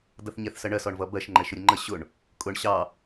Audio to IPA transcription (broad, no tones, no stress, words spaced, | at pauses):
dʌθɲɛθsɜɳɜ sɔɳvʌbɜʃ ŋ͡ǃɛʃʊɾʲʊŋ͡ǃə ɕʊɳ | kʼʊɳ ɕɑ